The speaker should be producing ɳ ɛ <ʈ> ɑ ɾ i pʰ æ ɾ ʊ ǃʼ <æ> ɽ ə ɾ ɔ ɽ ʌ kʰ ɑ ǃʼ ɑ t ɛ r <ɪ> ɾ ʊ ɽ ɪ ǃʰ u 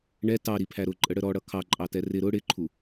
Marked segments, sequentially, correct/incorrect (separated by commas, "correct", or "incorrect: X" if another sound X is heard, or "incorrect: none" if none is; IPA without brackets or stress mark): incorrect: t, incorrect: ə, correct